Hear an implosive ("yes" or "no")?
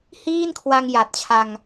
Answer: no